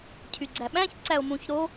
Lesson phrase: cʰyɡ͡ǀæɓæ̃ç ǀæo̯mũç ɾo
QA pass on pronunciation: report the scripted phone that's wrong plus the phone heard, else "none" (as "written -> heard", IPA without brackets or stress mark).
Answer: none